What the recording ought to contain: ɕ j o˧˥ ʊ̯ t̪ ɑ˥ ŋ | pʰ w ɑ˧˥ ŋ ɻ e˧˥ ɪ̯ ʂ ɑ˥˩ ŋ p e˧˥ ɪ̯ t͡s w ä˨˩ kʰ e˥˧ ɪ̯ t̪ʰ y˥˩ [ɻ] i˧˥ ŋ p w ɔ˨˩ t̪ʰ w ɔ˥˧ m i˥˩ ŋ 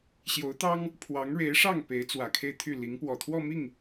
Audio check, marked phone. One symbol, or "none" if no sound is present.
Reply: l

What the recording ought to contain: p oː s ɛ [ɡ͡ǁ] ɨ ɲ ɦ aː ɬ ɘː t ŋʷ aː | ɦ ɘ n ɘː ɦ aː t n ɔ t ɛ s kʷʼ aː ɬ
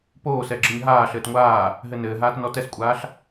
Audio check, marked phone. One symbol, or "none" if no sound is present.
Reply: ɡ͡ǁ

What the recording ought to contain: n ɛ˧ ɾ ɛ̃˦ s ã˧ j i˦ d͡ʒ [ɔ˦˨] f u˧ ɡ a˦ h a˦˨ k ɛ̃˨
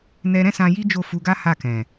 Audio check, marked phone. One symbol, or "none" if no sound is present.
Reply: o˦˨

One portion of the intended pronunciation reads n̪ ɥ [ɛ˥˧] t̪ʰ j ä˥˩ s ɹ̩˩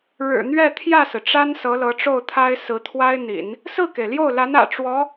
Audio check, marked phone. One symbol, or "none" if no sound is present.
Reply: ɛ˥˧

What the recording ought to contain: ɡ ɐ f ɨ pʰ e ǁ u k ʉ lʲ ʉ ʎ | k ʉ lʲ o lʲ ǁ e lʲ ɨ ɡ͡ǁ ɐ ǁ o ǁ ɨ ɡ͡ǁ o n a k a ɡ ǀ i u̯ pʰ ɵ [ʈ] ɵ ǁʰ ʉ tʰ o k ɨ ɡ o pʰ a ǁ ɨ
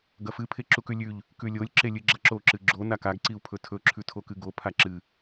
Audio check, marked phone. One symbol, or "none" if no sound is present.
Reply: tʰ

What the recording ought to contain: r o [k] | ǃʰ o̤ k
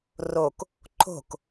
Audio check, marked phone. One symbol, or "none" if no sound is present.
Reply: k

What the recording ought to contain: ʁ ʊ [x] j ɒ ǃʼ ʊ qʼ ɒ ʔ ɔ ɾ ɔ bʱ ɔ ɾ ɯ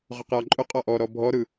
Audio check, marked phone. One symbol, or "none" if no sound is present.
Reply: q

